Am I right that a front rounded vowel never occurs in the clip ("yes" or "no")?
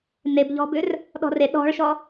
no